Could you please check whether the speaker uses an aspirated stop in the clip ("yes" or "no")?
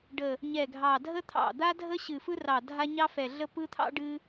yes